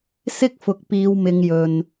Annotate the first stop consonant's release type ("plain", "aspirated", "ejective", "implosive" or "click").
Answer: plain